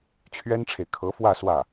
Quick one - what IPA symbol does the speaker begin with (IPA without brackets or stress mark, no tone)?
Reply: t͡ɕʰ